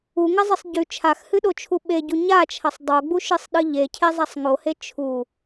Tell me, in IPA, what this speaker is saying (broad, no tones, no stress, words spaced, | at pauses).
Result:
uŋɐzˤɨsˤ ɟʉ t͡ʃʰaxhɨɗot͡ʃʰu ɓeɟu ɲat͡ʃʰɐsˤ dˤoɡ͡buʃɨsˤɗɨ ʎecʰezˤasˤ ŋohe t͡ʃʰu